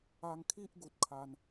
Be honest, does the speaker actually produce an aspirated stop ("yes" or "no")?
yes